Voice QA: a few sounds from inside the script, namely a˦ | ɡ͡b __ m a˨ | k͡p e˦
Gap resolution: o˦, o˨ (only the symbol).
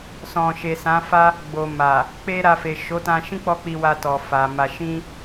o˨